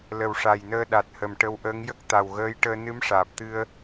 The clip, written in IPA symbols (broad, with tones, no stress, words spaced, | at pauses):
lə˨˩wʂa˨˩jnəː˧ ɗa˨˩t̚hə˨˩m ʈə˧wʔəː˧˥ŋ jə˦˥k̚t̪a˨˩wɣəː˧˥jʈəː˧ nɨ˧˥mʂaː˨˩p̚t̪ɨ˧ə̯